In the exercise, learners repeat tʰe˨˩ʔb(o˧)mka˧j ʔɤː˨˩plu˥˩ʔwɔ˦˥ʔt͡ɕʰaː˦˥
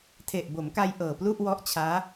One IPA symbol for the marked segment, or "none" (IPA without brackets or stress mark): o˩˦